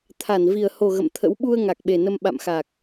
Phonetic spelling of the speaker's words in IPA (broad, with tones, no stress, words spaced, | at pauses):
t̪ʰa˧˩nvi˨˩ə̯ho˨˩ ɣə̰˧˨mt̪ʰə̰˧˥w ɓu˧ə̯ ŋa˨˩k̚ɓe˨˩nə˧m ɓa̰˧˨mxa˨˩k̚